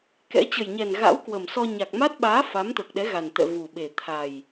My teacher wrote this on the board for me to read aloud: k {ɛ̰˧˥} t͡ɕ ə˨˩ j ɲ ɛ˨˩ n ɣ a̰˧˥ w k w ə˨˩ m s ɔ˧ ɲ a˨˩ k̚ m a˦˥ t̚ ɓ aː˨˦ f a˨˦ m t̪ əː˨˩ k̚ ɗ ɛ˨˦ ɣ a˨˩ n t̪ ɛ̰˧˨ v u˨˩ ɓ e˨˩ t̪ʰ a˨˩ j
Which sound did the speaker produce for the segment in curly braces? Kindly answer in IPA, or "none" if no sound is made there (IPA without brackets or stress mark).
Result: ɛ̰˧˥